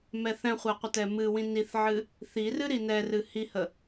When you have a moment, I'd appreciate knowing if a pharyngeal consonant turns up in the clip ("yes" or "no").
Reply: yes